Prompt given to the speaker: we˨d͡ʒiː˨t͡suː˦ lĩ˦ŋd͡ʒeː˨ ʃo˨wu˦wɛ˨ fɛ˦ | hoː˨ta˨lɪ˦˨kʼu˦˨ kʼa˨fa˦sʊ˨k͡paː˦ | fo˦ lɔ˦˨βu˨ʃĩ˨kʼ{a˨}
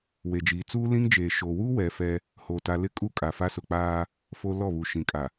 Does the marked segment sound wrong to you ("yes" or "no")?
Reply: no